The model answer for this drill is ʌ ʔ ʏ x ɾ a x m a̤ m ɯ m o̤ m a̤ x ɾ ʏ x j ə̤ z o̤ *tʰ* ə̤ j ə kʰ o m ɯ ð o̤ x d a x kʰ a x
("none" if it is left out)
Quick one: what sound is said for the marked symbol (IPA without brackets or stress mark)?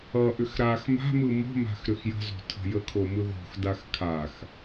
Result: tʰ